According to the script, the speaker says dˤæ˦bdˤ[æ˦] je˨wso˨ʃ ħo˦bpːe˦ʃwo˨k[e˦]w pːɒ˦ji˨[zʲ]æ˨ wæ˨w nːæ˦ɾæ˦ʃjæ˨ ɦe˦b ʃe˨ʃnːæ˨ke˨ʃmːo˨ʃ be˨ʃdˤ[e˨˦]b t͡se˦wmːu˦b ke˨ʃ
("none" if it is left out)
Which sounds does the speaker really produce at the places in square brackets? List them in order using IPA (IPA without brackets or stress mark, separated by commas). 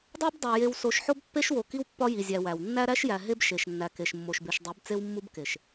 æ˨, i˦, zʲ, e˨˦